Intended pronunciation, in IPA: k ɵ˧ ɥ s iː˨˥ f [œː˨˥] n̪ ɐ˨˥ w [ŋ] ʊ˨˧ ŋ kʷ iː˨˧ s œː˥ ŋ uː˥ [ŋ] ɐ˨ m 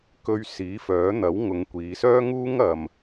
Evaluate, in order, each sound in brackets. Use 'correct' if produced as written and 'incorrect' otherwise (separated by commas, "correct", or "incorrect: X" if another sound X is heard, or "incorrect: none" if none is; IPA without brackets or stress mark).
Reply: correct, correct, correct